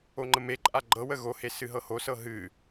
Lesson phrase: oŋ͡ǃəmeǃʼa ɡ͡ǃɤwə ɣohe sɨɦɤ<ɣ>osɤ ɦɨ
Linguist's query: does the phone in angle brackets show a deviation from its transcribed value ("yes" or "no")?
yes